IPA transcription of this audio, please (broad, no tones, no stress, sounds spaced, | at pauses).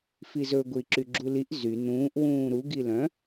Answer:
f i z ɵ ɡʷ i ǁ y ɡ͡ǁ u l i ʔ z y n ũː ʔ w ũː ɾ u ɡ i l œ̃